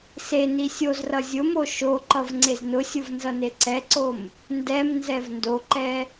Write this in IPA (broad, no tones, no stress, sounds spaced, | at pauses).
s e n i sʲ o z r ʌ zʲ ʊ m o ʃ o ǃ ʌ v ŋ͡ǀ e z n ʊ sʲ ʊ v n z ʌ n e ǀ ɛ ǀ o m | n d ɛ m n z ɛ v n d o ǃ ɛ